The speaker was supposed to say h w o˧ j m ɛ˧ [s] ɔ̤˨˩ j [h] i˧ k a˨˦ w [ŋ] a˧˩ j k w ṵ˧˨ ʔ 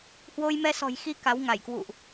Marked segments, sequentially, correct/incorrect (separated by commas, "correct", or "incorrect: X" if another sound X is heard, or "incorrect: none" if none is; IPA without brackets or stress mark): correct, incorrect: x, correct